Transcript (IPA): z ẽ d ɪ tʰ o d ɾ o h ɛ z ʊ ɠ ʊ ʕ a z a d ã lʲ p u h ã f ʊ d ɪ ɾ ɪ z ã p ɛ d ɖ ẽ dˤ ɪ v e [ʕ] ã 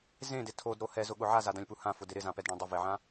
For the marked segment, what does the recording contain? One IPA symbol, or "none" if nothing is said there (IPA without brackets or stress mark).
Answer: ʕ